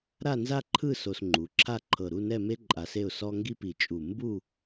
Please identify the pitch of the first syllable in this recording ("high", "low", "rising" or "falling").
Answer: falling